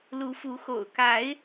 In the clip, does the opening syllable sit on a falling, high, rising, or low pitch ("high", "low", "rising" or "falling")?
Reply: rising